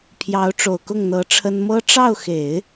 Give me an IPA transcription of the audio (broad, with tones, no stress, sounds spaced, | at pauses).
pʰ j ɑ˧˥ ʊ̯ ʈ͡ʂ o˨˩ ʊ̯ k ʊ˥˩ ŋ n̪ ɤ˧˥ ʈ͡ʂʰ ə˥ n m ɤ˥ ʈ͡ʂ ɑ˥˩ ʊ̯ x e˨˩˦ ɪ̯